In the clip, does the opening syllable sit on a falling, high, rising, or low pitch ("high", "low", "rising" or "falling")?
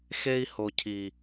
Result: high